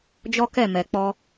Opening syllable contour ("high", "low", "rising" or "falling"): high